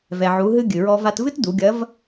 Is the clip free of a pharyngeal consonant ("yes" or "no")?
no